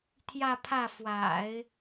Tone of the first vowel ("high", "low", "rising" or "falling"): falling